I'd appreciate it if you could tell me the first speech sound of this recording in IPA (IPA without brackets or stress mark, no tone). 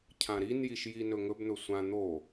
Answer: cʰ